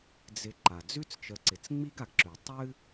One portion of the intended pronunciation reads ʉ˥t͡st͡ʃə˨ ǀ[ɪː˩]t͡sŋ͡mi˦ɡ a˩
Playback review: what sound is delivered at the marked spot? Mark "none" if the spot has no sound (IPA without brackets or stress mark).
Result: ɪ˩